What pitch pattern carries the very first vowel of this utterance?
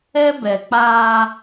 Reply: high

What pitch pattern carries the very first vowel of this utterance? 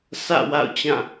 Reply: falling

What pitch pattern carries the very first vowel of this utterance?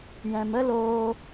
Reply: low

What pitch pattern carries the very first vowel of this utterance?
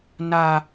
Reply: high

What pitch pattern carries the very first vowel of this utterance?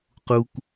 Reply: high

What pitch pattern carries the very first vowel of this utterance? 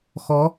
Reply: rising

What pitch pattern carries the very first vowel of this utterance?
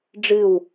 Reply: falling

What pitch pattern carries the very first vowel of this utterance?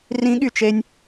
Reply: rising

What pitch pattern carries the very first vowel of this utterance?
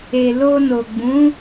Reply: low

